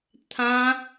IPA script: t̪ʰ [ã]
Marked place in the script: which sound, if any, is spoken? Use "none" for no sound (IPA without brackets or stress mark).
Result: ã